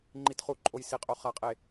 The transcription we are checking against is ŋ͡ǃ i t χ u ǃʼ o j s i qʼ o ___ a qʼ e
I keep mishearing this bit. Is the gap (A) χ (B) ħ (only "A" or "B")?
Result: A